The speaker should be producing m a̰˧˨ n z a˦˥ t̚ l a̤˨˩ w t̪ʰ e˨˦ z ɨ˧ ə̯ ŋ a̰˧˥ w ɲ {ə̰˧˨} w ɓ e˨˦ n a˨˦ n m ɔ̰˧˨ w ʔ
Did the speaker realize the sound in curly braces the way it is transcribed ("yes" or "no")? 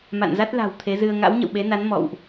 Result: yes